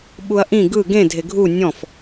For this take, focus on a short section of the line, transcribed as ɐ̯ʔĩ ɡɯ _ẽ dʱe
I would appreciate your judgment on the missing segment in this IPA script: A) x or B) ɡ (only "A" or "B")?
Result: B